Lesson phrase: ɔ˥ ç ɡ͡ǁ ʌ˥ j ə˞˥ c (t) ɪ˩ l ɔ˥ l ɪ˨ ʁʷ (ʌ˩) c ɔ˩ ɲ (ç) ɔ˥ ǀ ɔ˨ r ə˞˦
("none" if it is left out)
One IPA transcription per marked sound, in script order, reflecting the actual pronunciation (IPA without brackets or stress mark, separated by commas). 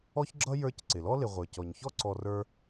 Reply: ǀ, ə˞˩, ç